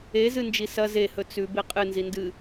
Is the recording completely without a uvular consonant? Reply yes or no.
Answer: no